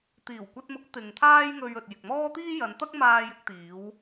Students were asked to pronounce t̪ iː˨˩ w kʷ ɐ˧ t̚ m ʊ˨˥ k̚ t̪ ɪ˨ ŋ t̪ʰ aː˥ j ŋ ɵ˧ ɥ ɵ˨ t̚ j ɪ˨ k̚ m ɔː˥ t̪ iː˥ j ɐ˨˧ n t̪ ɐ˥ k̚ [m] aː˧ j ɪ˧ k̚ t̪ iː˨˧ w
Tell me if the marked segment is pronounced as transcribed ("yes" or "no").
yes